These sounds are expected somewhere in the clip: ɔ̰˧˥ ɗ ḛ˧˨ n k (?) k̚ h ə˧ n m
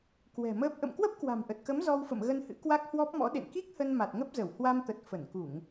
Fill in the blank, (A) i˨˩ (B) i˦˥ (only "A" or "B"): B